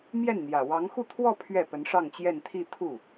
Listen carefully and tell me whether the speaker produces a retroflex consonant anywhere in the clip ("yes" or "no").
yes